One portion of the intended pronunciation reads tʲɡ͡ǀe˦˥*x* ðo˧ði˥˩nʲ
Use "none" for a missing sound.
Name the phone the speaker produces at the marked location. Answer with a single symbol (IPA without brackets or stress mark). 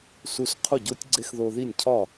x